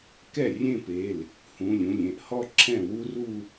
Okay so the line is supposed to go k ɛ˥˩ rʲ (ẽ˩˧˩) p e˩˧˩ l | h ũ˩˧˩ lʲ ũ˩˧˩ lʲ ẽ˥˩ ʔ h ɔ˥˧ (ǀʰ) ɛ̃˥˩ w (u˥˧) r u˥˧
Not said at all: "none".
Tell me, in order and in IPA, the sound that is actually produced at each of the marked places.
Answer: ẽ˥˧, ǁʰ, u˥

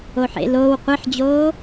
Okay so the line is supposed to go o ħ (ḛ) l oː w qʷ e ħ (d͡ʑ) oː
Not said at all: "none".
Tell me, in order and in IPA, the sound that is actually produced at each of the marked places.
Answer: ḛ, d͡ʑ

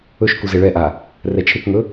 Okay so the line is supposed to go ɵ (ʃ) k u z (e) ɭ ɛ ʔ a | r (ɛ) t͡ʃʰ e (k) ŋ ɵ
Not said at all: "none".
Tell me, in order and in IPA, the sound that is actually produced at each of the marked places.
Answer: ʃ, e, ɛ, k

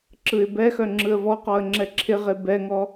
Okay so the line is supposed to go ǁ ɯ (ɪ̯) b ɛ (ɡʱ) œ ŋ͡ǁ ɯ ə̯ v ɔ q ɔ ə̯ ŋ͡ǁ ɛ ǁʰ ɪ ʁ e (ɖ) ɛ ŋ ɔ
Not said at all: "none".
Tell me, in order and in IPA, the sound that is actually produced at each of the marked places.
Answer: ɪ̯, x, b

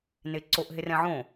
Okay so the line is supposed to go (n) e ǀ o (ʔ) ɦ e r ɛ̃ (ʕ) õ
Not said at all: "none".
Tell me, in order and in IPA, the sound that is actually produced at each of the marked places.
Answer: n, ʔ, ʕ

